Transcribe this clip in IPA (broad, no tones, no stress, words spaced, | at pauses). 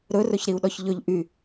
ɾɵrɵçɾiu̯ɗɔç ʎɵʎ ʔy